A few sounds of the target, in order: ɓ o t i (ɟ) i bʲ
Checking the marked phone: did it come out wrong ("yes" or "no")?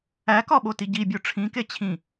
no